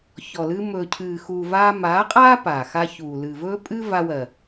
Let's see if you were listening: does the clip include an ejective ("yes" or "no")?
yes